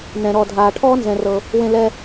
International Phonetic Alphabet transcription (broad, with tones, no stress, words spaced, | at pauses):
nɛ̃˨ ɾɔ˨dʱaː˨ ʈʰɔː˦nzɛ̃˧rɤ˧ | wẽ˧lɛ˧